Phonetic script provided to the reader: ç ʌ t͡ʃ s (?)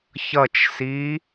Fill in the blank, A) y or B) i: B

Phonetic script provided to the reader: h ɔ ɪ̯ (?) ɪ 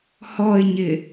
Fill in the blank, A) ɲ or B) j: A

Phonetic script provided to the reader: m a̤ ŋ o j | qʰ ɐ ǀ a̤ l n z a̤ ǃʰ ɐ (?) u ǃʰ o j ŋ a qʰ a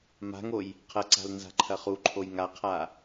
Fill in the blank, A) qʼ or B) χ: B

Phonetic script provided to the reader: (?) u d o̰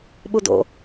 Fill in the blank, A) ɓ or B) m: A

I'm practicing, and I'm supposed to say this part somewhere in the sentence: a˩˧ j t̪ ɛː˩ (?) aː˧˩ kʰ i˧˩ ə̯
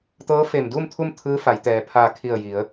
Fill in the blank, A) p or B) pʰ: B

